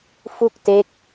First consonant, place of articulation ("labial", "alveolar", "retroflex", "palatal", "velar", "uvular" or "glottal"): labial